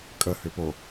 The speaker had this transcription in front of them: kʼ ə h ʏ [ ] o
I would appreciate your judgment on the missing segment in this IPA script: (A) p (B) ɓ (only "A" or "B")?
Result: A